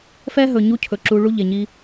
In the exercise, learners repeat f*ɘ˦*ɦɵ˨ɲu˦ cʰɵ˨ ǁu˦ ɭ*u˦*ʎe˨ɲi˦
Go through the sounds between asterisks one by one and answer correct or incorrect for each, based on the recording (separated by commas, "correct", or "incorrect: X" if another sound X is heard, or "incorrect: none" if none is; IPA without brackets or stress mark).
incorrect: ɛ˦, correct